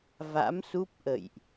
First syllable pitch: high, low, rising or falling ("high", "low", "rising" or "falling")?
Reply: rising